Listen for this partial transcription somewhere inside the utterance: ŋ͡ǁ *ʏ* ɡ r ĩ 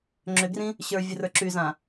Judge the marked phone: correct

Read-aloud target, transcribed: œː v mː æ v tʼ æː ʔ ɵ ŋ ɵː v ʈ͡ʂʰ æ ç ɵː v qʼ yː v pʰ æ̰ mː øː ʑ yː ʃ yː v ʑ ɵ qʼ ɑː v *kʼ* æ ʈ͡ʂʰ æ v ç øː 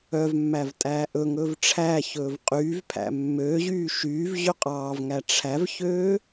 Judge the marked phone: incorrect: ŋ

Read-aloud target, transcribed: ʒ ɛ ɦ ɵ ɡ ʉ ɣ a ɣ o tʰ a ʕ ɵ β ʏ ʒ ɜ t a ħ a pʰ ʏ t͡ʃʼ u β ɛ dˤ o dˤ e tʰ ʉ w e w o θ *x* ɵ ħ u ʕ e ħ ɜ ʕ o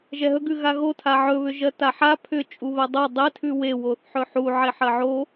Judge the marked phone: incorrect: ħ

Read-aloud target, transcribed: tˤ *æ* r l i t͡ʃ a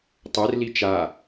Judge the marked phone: incorrect: ɛ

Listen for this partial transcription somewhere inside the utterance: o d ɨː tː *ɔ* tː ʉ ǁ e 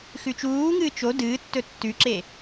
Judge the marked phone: incorrect: ɵ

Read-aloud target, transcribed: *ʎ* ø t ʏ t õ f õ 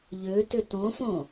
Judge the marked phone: correct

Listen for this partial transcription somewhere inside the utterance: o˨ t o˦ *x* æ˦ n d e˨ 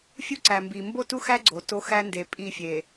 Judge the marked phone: correct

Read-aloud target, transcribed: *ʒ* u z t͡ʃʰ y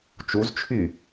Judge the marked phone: incorrect: t͡ʃ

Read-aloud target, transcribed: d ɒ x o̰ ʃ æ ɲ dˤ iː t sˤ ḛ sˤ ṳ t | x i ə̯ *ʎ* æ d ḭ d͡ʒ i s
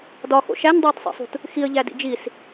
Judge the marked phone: correct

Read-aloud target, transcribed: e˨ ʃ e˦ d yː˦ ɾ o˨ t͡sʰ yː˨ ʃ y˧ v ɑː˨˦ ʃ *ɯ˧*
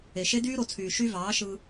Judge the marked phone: correct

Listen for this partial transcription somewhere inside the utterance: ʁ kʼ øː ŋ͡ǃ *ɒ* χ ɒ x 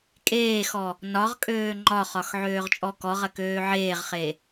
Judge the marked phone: correct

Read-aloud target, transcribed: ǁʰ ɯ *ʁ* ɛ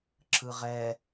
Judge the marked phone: correct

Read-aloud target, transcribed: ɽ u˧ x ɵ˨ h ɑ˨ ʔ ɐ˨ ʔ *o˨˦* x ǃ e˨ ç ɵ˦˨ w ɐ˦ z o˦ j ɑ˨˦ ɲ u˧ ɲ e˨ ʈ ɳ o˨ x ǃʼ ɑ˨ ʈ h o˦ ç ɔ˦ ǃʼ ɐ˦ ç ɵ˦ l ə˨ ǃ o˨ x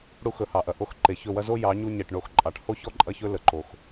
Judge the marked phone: incorrect: o˦˨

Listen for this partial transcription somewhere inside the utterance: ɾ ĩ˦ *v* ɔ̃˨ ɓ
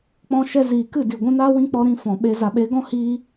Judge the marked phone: incorrect: f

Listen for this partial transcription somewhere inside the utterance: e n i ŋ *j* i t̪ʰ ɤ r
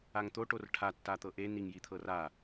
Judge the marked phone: correct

